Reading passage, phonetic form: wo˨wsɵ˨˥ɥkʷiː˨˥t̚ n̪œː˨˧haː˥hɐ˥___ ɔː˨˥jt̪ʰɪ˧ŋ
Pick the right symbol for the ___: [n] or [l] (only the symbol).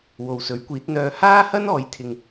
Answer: n